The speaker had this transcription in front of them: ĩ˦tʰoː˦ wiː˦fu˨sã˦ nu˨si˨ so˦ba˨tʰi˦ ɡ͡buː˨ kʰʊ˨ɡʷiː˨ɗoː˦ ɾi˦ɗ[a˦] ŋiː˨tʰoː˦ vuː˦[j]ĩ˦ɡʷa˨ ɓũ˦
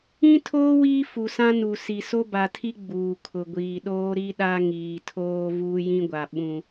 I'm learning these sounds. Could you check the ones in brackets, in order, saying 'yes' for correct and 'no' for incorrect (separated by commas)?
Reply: yes, yes